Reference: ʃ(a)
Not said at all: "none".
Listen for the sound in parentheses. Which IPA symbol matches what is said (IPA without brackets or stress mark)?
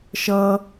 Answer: ʌ